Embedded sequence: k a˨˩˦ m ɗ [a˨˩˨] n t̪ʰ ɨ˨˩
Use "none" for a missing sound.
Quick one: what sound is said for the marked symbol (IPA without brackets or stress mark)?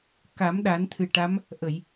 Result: a˨˩˦